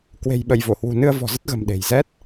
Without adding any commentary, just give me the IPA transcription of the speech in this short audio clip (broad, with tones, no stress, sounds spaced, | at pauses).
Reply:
k w e̤˨˩ j ɓ ə˧˩ j v o˧˩ h w ṳ˨˩ n ɨ˧ ə̯ v ɔ̤˨˩ z ə˦˥ t̚ ɣ ə̤˨˩ m ɗ e̤˨˩ j z ɛ˦˥ t̚